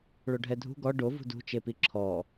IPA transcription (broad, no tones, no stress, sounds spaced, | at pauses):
ɭ o ɖʱ ɛ dʱ ṳ ɡ ɔ ɖ o v ṳ d ṳ t͡ʃ e p i ǁʰ ɔ